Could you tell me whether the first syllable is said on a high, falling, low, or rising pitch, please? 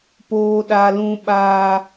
high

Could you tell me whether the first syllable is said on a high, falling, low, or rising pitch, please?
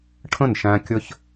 falling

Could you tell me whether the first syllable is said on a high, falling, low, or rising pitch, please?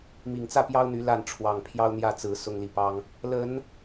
low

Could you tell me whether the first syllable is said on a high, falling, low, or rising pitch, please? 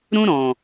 high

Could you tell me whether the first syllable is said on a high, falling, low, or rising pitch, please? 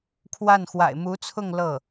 falling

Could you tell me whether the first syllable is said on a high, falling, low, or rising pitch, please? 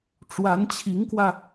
rising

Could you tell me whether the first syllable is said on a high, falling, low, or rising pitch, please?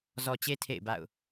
low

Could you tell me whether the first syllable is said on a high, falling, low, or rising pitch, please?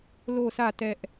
falling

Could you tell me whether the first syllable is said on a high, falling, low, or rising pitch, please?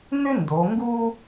high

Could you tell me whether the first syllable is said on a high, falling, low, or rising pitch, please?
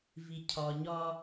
low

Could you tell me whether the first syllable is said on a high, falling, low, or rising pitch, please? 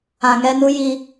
low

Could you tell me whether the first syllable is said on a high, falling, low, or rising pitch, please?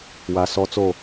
low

